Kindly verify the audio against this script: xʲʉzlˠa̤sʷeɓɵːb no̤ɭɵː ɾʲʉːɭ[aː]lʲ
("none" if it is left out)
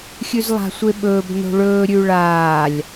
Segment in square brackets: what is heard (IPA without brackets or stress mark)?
aː